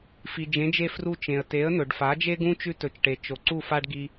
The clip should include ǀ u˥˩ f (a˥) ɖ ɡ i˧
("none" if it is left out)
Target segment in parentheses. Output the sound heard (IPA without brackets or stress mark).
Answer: a˥